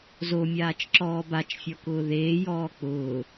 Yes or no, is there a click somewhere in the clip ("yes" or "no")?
yes